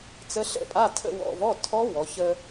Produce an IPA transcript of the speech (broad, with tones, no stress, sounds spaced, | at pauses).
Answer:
t͡s ə˧˥ ɬ ə̰˥˧ pʼ a˧˥˧ tʰ ə̰˥˧ w ɔ̰˧˥˧ v ɔ˧˥˧ tʰ ɔ˧˥ w ɔ˩˧ ç ə˧